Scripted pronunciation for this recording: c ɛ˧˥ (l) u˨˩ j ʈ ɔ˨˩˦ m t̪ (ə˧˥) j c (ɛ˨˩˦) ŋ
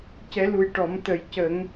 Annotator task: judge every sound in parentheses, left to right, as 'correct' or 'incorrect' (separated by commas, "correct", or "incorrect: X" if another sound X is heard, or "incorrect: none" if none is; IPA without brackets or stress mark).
correct, incorrect: ə˨˩, incorrect: ə˨˩˦